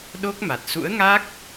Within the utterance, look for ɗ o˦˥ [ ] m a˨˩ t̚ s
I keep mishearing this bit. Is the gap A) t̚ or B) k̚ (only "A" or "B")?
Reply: B